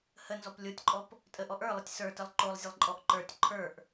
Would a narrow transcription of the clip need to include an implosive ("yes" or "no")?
no